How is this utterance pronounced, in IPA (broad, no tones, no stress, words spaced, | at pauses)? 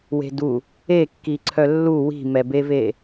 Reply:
we̤du | ekːi ǀʰœlːu wi̤mɛbeve